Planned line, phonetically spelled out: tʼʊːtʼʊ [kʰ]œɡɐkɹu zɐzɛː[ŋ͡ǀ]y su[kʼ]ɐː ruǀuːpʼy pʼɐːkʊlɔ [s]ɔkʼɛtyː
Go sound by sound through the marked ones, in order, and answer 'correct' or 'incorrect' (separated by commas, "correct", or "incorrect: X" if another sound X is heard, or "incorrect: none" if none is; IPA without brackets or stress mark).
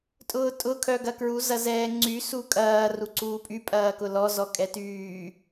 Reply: correct, correct, correct, incorrect: z